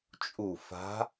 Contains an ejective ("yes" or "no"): yes